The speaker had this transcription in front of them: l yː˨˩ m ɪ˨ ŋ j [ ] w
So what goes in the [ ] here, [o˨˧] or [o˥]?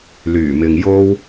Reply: o˥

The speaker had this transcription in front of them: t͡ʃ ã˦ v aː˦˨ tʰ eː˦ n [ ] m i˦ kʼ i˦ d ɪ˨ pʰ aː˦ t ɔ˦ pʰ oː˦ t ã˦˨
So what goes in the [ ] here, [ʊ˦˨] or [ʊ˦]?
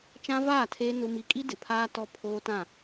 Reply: ʊ˦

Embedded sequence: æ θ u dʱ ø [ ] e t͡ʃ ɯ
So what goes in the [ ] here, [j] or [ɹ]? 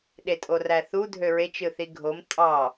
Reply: ɹ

